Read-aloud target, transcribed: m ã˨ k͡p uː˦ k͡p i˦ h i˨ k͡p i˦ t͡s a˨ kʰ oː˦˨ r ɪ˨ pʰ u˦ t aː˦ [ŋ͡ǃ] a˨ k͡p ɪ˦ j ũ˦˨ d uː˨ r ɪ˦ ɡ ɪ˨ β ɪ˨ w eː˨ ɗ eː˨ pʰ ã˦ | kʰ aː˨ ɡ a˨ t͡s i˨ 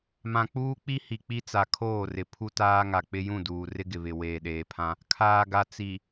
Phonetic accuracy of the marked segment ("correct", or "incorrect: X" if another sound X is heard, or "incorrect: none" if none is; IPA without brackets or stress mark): incorrect: ŋ